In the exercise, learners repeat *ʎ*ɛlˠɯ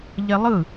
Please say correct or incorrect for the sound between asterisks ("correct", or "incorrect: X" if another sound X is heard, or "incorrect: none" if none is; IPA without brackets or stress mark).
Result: correct